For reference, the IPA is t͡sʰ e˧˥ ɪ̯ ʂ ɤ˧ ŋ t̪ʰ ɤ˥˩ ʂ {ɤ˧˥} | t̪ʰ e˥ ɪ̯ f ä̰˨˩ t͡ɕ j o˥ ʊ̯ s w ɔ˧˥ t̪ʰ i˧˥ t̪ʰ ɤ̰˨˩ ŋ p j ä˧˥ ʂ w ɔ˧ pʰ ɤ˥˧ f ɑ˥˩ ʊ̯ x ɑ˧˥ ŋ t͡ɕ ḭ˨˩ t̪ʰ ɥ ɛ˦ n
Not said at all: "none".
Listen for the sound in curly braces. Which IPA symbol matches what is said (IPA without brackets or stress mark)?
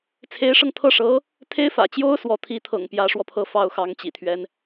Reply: ɤ˧˥